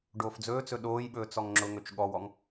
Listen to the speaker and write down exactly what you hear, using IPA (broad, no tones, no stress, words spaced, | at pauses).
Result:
ɖoːfd͡zɵːt͡sɵ ɗoːjɓɵː t͡sɔŋŋ͡ǁʊŋɵt͡ʃ ɠɔwɔŋ